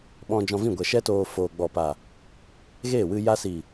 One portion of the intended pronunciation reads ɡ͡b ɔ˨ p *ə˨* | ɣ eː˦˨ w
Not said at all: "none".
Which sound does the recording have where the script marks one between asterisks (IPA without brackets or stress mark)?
a˨